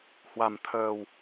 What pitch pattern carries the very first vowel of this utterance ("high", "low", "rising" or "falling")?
low